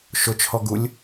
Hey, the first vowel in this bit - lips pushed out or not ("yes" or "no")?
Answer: yes